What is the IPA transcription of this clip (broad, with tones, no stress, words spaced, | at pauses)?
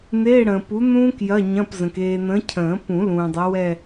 n̪eː˧˥˧ɽə̃ː˨ pu˨˥n̪ũː˦˥k jɐ˧˥˧ɲɐ̃˧˥˧pzə̃˨k eː˨ n̪ə̃ː˨˥ cʰə̃ː˨˩˦ pũ˨˩˦ lũː˨dˤɐ˨˥ wɛ˦˨